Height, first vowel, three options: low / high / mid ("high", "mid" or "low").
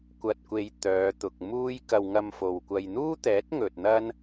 low